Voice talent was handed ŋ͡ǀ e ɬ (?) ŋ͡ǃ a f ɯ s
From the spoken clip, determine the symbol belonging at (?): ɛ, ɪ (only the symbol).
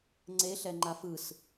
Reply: ɛ